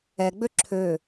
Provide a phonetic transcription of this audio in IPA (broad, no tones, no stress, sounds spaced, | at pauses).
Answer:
ɛ ɡ͡b ø ǁʰ ø